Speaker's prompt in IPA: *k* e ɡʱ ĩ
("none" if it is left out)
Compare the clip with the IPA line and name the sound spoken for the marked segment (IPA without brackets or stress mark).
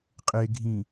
qʼ